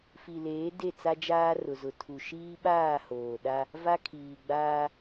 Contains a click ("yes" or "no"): no